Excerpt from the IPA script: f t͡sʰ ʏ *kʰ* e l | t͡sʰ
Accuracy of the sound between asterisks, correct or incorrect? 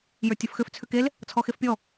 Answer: incorrect